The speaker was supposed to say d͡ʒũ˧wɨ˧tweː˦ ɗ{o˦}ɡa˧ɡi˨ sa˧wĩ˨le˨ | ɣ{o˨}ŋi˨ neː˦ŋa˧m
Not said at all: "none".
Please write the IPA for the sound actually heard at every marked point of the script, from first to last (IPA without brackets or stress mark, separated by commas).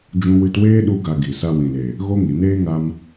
u˦, o˦